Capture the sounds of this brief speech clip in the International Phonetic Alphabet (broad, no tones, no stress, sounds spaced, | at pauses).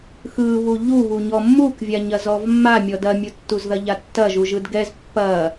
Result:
x ɯ β u ʎ u β u ɲ ɔ mː u k vʲ a ɲ ɐ z ɔ v mː a mʲ ɔ d ɐ mʲ u tː u z ð ɐ ʎ a tː ɐ ʒ u ʒ ɯ d ɡ ɛ z pː ɐ